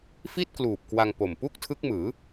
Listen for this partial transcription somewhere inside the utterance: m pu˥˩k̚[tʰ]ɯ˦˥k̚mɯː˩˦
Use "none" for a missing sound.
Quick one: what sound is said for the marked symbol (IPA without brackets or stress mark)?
tʰ